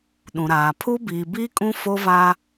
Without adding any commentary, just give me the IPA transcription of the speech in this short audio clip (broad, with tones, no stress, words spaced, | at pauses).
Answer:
ɗũ˨ɾaː˨ pʰu˦biː˨biː˦kʼũ˦ fo˦vaː˦